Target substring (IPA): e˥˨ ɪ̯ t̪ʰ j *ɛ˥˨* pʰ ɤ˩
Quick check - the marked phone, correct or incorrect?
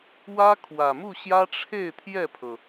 correct